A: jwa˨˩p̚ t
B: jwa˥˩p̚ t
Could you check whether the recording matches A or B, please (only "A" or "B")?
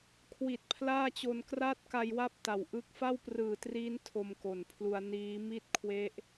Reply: B